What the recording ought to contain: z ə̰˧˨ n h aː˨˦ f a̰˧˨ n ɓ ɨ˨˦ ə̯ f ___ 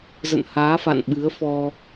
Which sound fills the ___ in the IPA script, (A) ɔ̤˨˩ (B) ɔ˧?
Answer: B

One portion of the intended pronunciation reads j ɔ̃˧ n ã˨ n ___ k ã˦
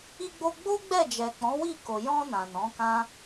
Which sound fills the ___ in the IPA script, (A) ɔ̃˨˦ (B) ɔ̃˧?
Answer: A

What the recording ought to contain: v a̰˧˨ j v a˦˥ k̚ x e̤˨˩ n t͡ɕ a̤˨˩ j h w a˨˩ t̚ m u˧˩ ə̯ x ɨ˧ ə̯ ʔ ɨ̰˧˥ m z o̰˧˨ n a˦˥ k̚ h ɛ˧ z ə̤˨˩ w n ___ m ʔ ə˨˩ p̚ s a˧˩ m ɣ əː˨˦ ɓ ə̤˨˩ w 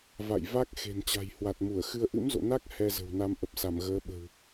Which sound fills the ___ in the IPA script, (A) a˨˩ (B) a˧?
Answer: B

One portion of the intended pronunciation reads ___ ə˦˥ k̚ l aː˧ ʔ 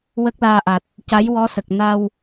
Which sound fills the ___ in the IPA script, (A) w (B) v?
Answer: A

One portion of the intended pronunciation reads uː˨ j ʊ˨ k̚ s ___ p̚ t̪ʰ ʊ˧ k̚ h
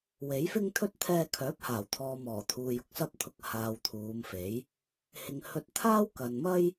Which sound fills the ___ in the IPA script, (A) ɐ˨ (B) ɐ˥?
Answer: B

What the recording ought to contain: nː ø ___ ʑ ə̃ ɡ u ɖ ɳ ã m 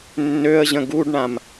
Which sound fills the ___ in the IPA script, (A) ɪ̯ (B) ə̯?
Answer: B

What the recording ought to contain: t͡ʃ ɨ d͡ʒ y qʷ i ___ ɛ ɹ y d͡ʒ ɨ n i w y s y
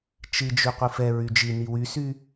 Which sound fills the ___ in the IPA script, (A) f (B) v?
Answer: A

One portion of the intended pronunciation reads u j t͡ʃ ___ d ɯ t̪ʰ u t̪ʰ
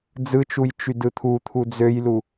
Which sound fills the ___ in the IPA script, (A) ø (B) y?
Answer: B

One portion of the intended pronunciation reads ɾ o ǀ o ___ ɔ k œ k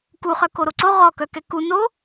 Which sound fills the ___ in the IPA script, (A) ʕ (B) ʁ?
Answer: B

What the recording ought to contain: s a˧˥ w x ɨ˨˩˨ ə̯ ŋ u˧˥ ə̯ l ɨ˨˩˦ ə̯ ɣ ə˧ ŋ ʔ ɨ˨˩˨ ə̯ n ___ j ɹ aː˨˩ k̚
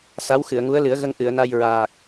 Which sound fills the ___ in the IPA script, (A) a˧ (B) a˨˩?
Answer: A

